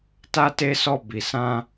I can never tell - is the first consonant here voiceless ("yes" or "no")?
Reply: yes